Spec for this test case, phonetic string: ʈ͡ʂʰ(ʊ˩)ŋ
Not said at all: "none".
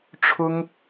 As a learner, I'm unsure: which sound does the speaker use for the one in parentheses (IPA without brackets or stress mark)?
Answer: ʊ˥